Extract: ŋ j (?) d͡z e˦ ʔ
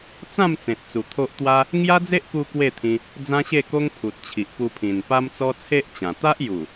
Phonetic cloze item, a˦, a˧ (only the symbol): a˦